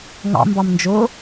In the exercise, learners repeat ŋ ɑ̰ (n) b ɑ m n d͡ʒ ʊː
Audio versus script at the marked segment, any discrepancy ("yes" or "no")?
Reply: yes